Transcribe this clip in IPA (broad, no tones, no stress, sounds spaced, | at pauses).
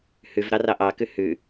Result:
h ʉ v ɾ ɑ r ɑ ʔ ɑ k ʉ h ʉ